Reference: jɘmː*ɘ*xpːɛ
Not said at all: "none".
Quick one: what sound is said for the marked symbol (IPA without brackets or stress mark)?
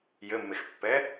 e